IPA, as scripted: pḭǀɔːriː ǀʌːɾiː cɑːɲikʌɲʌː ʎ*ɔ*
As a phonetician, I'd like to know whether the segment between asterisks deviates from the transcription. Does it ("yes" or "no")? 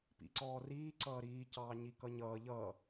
yes